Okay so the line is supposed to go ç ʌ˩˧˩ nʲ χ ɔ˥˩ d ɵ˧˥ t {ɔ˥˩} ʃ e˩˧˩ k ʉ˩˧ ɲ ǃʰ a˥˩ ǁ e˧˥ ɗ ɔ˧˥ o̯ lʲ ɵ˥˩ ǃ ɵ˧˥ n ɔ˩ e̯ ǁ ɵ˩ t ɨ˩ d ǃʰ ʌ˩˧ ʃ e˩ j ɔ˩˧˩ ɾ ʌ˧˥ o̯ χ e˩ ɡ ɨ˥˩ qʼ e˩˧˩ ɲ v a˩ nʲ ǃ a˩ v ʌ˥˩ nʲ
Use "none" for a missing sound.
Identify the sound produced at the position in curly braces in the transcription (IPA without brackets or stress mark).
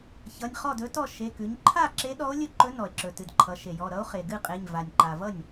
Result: ɔ˥˩